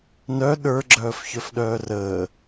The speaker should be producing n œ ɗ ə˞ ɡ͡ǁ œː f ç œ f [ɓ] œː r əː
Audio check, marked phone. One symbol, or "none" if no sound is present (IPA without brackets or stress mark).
ɗ